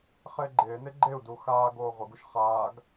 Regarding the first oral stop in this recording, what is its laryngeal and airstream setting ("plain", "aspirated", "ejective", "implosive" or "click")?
click